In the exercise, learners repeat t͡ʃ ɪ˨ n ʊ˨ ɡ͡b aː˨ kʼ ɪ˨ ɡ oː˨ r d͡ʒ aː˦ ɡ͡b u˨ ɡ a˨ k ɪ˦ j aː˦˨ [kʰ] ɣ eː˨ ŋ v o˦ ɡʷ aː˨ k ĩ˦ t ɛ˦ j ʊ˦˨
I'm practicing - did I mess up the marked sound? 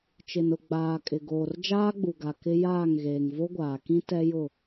yes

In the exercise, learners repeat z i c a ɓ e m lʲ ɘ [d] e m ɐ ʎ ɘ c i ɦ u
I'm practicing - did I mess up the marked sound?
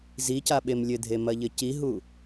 yes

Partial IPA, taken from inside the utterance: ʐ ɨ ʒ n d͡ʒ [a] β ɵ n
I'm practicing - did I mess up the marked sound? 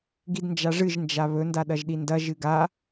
no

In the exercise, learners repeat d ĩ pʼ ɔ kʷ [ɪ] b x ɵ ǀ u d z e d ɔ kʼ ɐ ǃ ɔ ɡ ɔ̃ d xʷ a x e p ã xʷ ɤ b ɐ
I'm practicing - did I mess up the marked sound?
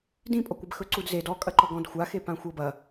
no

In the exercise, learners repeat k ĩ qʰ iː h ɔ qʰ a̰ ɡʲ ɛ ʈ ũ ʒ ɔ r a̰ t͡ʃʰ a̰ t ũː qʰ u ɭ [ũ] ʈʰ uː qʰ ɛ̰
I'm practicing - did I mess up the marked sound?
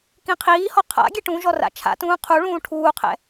yes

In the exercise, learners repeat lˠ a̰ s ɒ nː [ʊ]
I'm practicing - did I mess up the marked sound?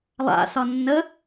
yes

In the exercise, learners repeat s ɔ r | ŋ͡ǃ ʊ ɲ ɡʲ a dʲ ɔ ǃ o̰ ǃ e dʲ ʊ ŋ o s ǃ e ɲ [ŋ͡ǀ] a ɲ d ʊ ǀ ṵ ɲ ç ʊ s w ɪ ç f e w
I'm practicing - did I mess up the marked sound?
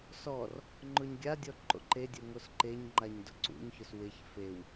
yes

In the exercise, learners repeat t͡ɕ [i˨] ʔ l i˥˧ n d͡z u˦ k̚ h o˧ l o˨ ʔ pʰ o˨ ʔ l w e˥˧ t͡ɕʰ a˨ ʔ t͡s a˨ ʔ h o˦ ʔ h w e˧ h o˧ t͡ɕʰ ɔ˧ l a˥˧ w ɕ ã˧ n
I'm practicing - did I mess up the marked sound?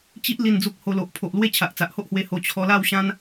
yes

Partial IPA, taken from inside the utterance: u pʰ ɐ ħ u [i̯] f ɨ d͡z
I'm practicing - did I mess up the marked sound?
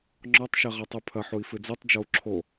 no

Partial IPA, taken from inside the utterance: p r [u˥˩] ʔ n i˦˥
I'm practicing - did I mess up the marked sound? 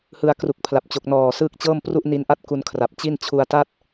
no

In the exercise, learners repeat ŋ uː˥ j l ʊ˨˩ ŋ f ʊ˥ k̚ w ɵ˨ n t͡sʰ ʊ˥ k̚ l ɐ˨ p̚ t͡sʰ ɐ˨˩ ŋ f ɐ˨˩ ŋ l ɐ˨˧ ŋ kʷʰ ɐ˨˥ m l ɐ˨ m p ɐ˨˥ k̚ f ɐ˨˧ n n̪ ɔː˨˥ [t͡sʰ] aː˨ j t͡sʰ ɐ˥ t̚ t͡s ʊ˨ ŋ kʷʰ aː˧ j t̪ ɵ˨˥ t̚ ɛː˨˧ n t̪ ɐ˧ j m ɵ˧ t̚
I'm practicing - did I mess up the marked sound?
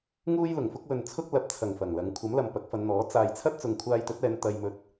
yes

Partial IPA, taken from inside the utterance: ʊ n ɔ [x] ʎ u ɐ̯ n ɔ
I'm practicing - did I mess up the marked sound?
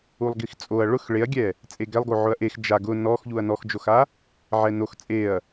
no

